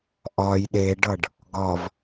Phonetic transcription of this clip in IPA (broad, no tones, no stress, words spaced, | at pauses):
ʔɒj ɗeɖʌɖ | ɡɒv